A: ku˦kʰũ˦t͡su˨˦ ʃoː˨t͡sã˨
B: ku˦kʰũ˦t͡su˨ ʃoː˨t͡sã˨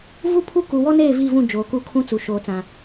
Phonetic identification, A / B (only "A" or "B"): B